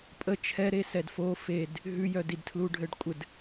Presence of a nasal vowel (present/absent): absent